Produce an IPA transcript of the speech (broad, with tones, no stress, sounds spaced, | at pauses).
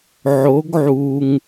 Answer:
ʕ o˧˥ ɡ ʕ u˧ ŋ